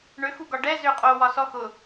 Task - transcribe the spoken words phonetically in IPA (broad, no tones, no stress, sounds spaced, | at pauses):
ɳ ø x u ɡ ɒ ɖ ɛ z ø qʼ o w ɒ s ɔ x ʊ